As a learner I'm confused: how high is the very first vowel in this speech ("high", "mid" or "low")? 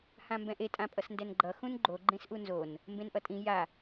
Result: low